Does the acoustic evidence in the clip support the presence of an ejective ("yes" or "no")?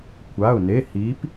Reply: no